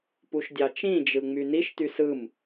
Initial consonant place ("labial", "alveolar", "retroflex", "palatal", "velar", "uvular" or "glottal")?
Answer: labial